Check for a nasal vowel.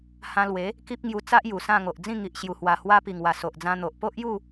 present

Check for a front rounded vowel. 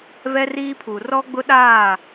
absent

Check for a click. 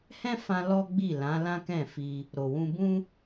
absent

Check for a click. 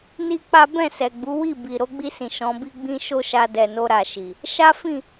absent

